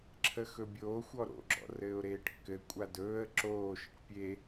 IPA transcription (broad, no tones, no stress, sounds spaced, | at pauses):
ǁʰ ə x ɵ bʲ oː xʷ ɔ ɾ o̰ ɡ͡ǁ ɔ̰ r ɘː ʊ̯ ɾ eː ʈ kː ɘ kʷʼ a d ɵː ə̯ ǁ oː ʃ ə ʈ pʲ e